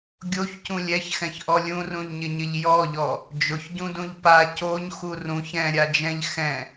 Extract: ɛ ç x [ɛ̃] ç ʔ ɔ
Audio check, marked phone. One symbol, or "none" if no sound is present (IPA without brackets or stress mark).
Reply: ɛ̃